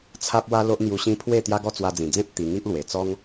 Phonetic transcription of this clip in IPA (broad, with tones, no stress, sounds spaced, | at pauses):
t͡sʰ a˦ p̚ w a˦ l o˦ ʔ n̪ j u˧ ɕ ĩ˦ pʰ w e˥˧ t̪ j a˦ ɡ ɔ˥˧ t͡s w a˧ d͡z ĩ˨˩ d͡z ẽ˦ p̚ t̪ i˧ ŋ i˦ ʔ l w e˨˩ t͡s ɔ˦ ŋ